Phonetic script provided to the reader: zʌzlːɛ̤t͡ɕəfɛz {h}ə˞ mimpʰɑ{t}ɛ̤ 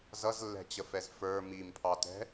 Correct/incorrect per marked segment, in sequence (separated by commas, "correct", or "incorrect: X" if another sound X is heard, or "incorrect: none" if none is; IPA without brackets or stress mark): incorrect: f, correct